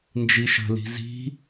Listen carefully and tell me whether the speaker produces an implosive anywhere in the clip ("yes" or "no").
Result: no